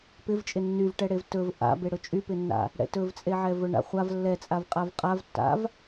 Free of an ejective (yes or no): no